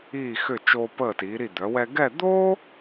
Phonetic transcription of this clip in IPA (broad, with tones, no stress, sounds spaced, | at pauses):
iː˧˩ x ʏ˧˩ t͡ʃ oː˧ p əː˧˩ t iː˩˧ ɾ i˧˩ d̪ œ˩˧ w ɛ˧ ɡ ɛ˥˧ d̪ oː˥